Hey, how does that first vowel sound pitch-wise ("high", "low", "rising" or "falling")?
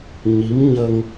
rising